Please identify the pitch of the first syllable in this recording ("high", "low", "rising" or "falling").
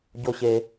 high